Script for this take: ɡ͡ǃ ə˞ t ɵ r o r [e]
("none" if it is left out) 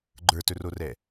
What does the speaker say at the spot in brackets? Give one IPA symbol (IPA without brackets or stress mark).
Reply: ɛ